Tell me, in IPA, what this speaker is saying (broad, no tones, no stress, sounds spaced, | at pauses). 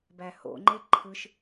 b æ h o̰ ŋ͡ǃ e ǃʰ ɯ ʃ